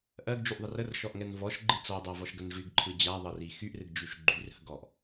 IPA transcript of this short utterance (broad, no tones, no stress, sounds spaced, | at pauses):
ʔ ɜ ɡ d͡ʒ y ʔ ðˤ ə r ə r ʃ ɔ ʔ ŋ ɛ n v ɔ ʃ ɡ͡ǃ ɨ t͡s ɔ dˤ a v ɔ ʃ ɡ ə n ʐ y ɡ ǃʰ ɨ d͡ʑ a ðˤ ə r i x y ʔ r ɨ ɡ d͡ʒ y ʃ ɡ͡ǃ y r h ə ɡ ɔ ʔ